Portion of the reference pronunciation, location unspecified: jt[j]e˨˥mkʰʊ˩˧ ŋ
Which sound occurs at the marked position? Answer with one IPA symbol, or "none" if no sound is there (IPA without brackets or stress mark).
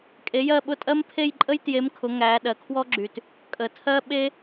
j